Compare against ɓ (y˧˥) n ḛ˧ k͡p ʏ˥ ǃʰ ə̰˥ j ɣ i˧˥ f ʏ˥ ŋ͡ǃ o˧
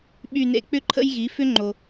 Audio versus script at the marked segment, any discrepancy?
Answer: yes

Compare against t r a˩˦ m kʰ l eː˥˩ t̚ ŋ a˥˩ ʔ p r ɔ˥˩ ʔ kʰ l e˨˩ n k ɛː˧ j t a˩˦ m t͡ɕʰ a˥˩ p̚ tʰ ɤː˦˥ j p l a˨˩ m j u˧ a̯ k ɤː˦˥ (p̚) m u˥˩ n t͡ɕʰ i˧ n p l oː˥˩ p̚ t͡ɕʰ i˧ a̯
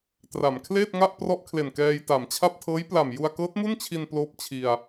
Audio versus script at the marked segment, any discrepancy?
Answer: yes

